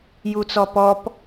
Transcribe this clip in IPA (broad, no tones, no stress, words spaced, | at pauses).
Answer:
jut͡sɔpɔp